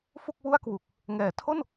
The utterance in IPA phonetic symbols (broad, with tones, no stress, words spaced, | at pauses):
fu˥˩k̚wu˥˩a̯kwu˨˩k̚ | ŋɛː˩˦tʰo˥˩n